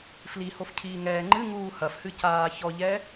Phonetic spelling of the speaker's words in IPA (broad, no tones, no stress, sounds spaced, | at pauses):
f l i h o f cʰ iː ŋ ɛː ŋ͡ǃ ɨ ŋ uː h ɐ f h ɨ c aː ç ɔ ʎ ɛ